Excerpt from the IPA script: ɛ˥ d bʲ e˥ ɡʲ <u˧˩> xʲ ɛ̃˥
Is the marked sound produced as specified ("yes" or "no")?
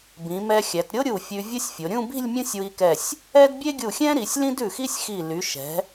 yes